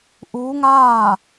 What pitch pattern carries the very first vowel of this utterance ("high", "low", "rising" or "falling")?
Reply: rising